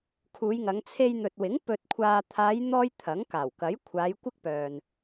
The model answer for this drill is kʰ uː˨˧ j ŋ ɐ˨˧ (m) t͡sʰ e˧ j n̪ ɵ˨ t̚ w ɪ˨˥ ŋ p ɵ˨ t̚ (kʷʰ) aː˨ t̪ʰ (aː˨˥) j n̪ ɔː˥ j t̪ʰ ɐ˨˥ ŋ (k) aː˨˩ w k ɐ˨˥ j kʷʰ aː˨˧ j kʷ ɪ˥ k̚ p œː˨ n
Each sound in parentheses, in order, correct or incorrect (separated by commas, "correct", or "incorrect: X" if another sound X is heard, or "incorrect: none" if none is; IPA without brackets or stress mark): incorrect: ŋ, correct, incorrect: aː˨˧, correct